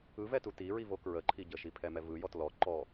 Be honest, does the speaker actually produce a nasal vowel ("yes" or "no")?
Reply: no